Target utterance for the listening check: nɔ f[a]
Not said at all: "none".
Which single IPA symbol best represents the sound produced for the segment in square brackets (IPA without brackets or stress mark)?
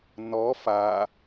a